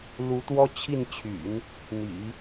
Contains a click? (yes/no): no